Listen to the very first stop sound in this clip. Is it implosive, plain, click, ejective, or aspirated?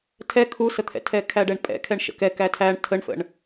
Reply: aspirated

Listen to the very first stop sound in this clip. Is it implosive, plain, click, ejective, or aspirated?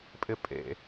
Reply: ejective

